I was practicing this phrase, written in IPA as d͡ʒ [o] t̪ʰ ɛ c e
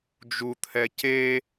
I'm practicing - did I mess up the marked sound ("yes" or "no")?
yes